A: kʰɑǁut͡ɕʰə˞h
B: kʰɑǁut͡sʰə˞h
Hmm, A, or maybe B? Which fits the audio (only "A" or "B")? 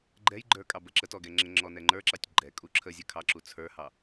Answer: B